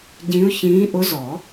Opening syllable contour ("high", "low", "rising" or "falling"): rising